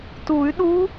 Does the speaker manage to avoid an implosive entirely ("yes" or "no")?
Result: no